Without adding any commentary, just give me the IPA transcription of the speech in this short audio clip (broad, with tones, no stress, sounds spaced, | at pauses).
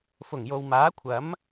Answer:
f ʊ˨˩ ŋ j o˨ w m aː˨˥ kʷʰ ɐ˨˥ m